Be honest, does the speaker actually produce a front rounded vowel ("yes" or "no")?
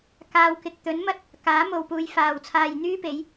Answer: yes